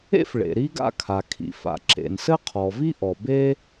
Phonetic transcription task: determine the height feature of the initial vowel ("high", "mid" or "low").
mid